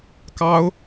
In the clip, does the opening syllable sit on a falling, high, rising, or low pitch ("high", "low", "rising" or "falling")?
high